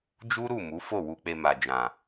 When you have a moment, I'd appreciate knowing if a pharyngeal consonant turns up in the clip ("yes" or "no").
no